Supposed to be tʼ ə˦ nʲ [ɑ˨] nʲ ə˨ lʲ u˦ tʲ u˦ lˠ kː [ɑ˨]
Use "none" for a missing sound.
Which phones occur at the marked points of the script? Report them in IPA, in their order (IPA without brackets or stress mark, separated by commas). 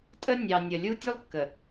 ɑ˨, ə˨